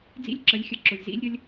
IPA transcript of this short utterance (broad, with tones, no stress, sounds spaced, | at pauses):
d͡z ḭ˦˨ lʲ ǁ ə˨˦ lʲ xʲ ə˨˩˦ ǁ ʊ˨ lʲ z ḭ˦ lʲ ɾʲ ə˦ lʲ